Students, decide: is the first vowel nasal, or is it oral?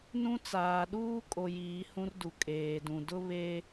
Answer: nasal